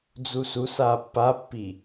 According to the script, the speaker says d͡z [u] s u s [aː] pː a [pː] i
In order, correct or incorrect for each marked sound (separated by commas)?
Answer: correct, correct, correct